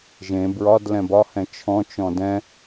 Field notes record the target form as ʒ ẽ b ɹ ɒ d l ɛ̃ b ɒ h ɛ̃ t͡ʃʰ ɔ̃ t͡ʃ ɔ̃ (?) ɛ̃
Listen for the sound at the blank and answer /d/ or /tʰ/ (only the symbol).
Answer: d